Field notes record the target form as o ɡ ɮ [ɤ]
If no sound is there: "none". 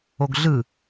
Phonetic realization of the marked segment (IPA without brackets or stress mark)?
ɯ